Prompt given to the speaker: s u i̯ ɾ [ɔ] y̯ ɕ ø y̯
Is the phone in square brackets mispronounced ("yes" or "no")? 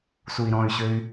yes